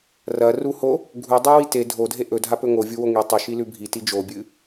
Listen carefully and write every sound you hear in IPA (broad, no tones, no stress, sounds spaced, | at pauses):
r ɐ r u h o | ɡʱ u dˤ ʉ w i t e dʱ o dʱ e ʔ ɵ dʱ a p ɵ ŋ o vʲ u w o ŋ i tˤ ɵ ʃ i l ʉ bʱ i t i d͡ʒ o bʲ ɨ